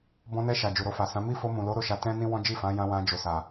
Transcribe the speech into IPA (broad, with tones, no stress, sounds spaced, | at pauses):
b ɔ̃˧ n ɛ˧ ʃ a˨ d͡ʒ u˨ ɾ o˧ f a˨ s ã˨˦ m i˦ f o˧ m ũ˨ l o˨˦ ɾ o˦˨ ʃ a˧ t ɛ̃˦ n ĩ˦ w ɔ̃˦ d͡ʒ i˦˨ f ã˨˦ j ã˧ w ã˧ d͡ʒ o˨ s a˨